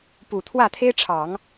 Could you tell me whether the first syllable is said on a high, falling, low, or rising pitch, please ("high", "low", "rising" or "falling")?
low